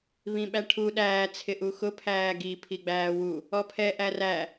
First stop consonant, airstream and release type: implosive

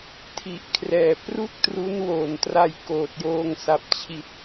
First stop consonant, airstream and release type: aspirated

